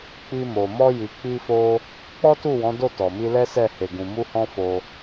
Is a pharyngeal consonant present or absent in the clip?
absent